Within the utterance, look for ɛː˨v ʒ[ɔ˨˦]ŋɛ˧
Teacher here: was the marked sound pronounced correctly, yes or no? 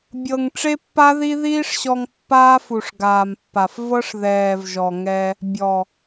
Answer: no